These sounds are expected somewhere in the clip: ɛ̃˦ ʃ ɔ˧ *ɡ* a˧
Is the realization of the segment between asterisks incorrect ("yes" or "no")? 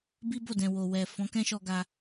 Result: no